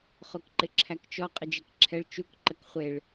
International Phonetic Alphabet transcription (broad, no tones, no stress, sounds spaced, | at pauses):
χ o k ǃ ɪ ǁʰ æ k t͡ʃ ɔ qʼ ə d͡ʒ e k ǁʰ ɛ ɭ t͡ʃ u k ǃ ə k χʷ e ɭ